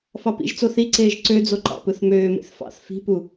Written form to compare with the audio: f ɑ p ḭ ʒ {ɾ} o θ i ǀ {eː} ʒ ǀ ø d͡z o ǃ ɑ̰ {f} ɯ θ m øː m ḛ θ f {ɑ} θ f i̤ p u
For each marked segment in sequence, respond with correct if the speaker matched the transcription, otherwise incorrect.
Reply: incorrect, correct, incorrect, incorrect

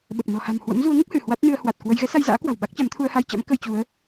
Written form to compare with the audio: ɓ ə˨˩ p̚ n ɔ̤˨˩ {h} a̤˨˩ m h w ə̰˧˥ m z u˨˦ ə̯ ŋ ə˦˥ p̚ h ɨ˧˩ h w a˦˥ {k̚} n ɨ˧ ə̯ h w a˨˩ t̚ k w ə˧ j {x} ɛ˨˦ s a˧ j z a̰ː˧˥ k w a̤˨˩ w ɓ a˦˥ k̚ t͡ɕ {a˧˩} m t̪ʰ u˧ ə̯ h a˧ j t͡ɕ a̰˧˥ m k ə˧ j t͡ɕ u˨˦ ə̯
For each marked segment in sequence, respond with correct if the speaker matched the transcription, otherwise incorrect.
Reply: correct, incorrect, incorrect, incorrect

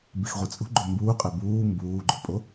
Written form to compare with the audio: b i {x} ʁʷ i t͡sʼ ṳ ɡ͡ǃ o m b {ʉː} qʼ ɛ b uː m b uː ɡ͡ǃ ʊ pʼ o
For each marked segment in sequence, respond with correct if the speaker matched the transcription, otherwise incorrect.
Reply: correct, incorrect

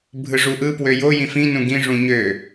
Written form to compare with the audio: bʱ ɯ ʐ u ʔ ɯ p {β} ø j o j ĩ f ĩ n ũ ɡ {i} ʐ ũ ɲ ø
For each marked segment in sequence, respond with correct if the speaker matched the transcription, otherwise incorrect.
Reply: incorrect, incorrect

